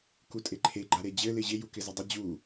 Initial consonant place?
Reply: velar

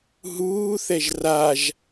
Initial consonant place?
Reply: glottal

